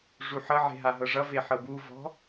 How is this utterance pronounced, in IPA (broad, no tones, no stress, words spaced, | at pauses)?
ʐuħʌʕe̤ ɦaɦɤʐʌve ħɤbuvɔ̤